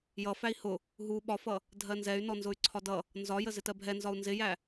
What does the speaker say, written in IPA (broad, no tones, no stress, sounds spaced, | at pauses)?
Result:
j ʌ f æ i̯ h ʊ | ɦ u ɓ ɒ f ʌ | dʱ ɜ n z ɛ y̯ n ɔ n z ʊ y̯ ǀʰ ɒ d ʌ | n z ɒ j ə z ɪ t ɜ bʱ ɛ n z ɒ u̯ n z ɪ j æ